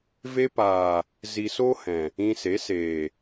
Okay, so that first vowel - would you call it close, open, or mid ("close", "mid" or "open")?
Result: mid